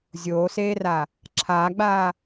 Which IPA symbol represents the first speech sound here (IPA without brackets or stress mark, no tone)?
zʲ